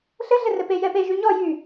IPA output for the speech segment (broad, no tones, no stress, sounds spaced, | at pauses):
ɬ ɘ ɮ ɘ r ɘ p e j ɛ p e ʒ y ɲ ɔ j y